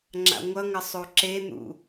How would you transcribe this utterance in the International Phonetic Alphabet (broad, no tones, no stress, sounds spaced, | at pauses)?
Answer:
ŋ͡ǁ a̰ ŋʷ ʌ ŋ ʌ sˤ o ǁ e n̪ ṵ